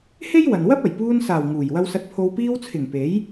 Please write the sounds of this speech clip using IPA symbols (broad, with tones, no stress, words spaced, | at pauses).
he˥j wɐ˨n wɐ˥p̚ɐ˨˩j puː˧nsaː˨˩w ŋuː˨˩j wɐ˧wsɐ˧t̚pʰo˧w piː˧wt͡sʰɪ˨˩ŋ pe˨˥j